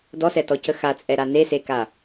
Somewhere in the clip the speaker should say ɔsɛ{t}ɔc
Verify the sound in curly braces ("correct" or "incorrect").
correct